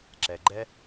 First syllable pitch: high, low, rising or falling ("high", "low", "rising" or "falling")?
low